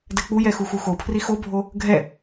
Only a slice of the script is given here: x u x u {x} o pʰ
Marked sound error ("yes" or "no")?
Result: no